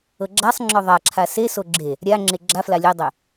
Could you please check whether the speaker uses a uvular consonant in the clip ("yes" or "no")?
no